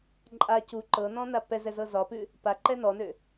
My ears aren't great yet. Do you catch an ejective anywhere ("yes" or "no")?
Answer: yes